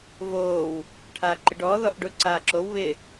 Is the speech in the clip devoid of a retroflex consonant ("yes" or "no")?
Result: no